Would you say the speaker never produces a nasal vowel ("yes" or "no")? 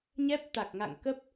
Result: yes